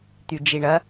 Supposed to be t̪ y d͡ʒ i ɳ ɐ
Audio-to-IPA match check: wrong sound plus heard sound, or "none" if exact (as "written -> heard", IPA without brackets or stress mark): none